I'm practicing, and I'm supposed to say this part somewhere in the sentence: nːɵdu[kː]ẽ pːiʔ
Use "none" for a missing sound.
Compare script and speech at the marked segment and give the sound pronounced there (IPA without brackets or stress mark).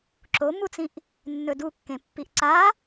kː